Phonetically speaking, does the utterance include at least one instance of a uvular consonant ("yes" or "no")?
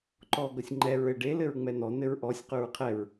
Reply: yes